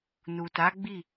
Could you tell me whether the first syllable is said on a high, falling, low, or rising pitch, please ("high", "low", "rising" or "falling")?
low